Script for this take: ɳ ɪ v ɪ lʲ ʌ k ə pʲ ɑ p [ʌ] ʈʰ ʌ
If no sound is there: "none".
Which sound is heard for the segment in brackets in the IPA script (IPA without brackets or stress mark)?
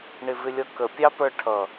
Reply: ə˞